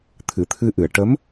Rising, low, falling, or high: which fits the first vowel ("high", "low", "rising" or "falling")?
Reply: low